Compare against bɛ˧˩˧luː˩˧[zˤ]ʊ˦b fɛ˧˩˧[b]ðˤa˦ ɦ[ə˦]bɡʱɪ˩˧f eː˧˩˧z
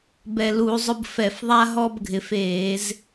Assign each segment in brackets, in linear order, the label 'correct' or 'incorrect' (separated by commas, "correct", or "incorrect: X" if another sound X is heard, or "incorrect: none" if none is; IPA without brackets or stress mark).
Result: correct, incorrect: f, incorrect: ɔ˦